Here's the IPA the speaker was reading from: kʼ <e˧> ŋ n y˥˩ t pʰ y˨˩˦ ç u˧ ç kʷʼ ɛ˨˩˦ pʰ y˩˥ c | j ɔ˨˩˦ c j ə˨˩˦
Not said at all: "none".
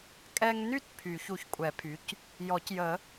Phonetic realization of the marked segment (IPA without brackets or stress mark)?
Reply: ɛ˧